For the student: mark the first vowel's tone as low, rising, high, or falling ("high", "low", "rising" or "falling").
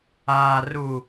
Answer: low